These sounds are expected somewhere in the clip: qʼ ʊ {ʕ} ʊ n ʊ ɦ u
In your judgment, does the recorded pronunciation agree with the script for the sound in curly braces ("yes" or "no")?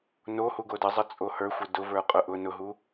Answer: no